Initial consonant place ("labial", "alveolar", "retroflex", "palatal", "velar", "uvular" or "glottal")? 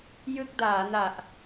palatal